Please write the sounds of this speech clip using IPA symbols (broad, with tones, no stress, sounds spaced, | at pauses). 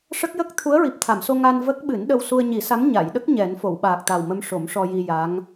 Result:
ʂ ə˦˥ k̚ j ə˦˥ k̚ t̪ʰ u˧˥ ə̯ ɹ i˨˩ p̚ t̪ʰ a˨˩˨ m s o˧ ŋ a˧ n v ə˦˥ k̚ ɓ ɨ˨˩˦ n ɗ ə˧ w s u˧ ə̯ ɲ i˨˩˦ s a˧˥ m ɲ a˨˩˨ j ɗ ə˦˥ k̚ ɲ ɛ˨˩˦ n f o˨˩˨ w ɓ aː˨˩ k̚ t̪ a˨˩ w m ə˧ m ʂ o˨˩˦ m ʂ ɔ˧ j i˧ j a˧˥ ŋ